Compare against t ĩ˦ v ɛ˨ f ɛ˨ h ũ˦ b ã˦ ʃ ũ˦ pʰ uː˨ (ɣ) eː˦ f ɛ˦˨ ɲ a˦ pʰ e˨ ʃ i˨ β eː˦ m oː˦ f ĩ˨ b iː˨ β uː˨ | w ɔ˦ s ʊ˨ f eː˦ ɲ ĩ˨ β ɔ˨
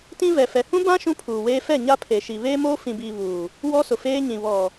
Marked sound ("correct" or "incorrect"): incorrect